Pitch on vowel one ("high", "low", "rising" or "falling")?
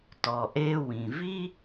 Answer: low